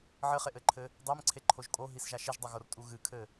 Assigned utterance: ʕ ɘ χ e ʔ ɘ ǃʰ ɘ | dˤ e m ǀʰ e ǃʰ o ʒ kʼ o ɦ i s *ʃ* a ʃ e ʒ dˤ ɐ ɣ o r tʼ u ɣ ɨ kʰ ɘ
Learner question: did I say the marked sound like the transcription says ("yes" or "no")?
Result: no